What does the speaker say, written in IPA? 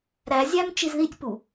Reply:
ɾ æ zʲ æ m t͡ʃ i z ð i tʲ p u

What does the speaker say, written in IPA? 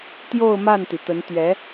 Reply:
t̪ j o˥˧ ʊ̯ m a˥˩ n t̪ i˩ t̪ ə˧˥ n t̪ ɥ ɛ˧˥

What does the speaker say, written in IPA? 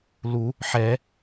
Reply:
l u | ħ ɛ

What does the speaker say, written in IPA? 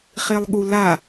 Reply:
χ e lˠ ɠ u l a

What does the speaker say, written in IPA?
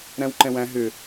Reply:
ɾ æ̃ w ǃ ɛ̃ w æ̃ ɦ ʏ

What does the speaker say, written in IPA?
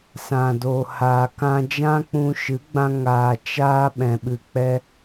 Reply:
s ã˨ d oː˨ h aː˨ k ã˧ d͡ʒ ã˦ k͡p ũ˧ ʃ ɨ˨˦ ɡ͡b ã˧ ŋ aː˨ t͡ʃ aː˧ ɓ ɛ̃˨ ɓ ɨ˨ k͡p ɛ˦

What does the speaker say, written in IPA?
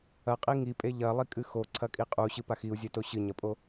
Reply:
ɐ qʼ i ŋ i pʼ e ʎ ɐ lˠ i kʼ ɨ x o ǀʰ ɐ kʼ i qʼ u ɕ ɨ p a x i u̯ zʲ ɵ t o ɕ ɨ ɲ ɐ pʼ o

